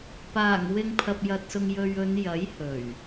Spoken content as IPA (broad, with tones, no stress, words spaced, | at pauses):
paː˨˩ŋwɪ˨ŋ pʰɐ˨p̚jɐ˨t̚sʊ˨ŋ jɵ˨ɥɵ˨˧njɐ˨˥j hɵ˨˩ɥ